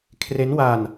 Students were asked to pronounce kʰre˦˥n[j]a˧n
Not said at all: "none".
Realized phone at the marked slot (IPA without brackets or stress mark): w